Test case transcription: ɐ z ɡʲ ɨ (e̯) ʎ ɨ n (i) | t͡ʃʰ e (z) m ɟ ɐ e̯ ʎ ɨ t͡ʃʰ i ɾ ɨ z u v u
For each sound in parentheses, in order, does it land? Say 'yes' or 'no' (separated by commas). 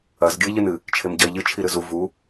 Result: yes, no, no